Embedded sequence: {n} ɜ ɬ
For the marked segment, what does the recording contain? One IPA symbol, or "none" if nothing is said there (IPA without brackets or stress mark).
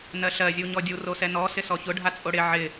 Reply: n